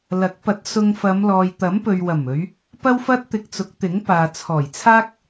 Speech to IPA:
l ɐ˨˥ k̚ p ɐ˨˥ t̚ s ʊ˧ ŋ f ɐ˨˧ m l ɔː˨ j t̪ ɐ˨˥ m p ɵ˨ ɥ w ɐ˨˩ m ɵ˨˧ ɥ | p ɐ˥ w f ɐ˥ t̚ t̪ ɪ˧ k̚ t͡s ʊ˨˥ k̚ t̪ ɪ˨˥ ŋ p aː˨ t͡sʰ ɔː˨˩ j t͡sʰ aː˥ k̚

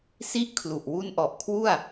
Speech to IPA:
s i˥˩ ʔ kʰ l u˨˩ ʔ w u˦˥ n ʔ ɔ˨˩ ʔ kʰ w u˥˩ a̯

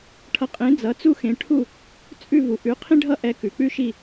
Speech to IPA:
ʈʰ ʌ˩˥ qʼ ẽ˩˥ d͡z ʌ˩˥ t͡s u˥ x ẽ˩˥ ʈʰ u˥˩ | t͡sʼ ʉ˥˩ v u˩ ʔ ʉ˩˥ qʰ ĩ˥ ɖʱ ʌ˥ ʔ ɛ˧ k ʉ˩ k͡p ʉ˥ ʃ i˥˩

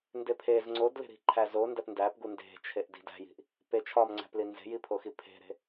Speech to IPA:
n d e pʰ e z ŋ͡ǀ o d l e̤ ɾ i̤ ǃʰ æ z o n d æ p n d æ p ɡ u n d e̤ t͡ʃʰ e ʔ d i̤ d æ̤ j i̤ ʔ | p e t͡ʃʰ ɒ m ŋ͡ǀ æ̤ p l i n z e̤ j i pʰ o x i pʰ e̤ ɾ e̤

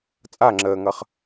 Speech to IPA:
t͡sʼ a ŋ͡ǁ əː ŋ ʌ χ

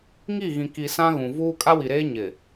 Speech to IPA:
ŋ i˦˨ ɣ ĩ˨ k i˨ s ã˦ ɣ ũ˨ v uː˦ kʼ a˦ w i˨ ɾ eː˦ ɲ ɪ˨

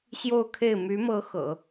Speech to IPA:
ɕ j o˥˧ ʊ̯ kʰ e˥˩ ɪ̯ m y˧˥ m ɤ˧˥ x ɤ̰˨˩˦

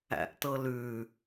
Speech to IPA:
æ̰ ʔ t ɤ l ʉ

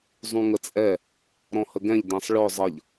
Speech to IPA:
zˤ ũ ŋ ə t͡sʼ ɛ | ɾ ɔ̃ h ə ɡ ɛ̃ ʎ d ɛ̃ sˤ ɭ œ zˤ ʌ ʎ

